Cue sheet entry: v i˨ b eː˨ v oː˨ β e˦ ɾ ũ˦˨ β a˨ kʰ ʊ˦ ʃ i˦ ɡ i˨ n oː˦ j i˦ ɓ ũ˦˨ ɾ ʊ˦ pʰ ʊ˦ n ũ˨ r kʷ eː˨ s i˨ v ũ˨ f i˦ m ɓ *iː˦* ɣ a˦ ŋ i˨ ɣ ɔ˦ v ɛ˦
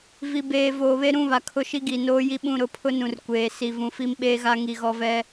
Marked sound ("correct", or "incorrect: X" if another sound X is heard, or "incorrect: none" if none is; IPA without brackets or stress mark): incorrect: eː˦